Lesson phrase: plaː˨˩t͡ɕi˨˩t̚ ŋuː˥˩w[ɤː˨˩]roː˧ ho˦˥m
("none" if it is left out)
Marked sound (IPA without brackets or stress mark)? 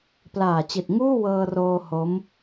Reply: ɤː˧